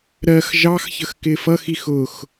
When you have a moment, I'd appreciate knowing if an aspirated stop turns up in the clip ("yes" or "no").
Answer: no